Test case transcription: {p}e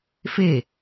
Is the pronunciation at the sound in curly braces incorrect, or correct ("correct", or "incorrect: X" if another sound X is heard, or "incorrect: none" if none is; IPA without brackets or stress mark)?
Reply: incorrect: f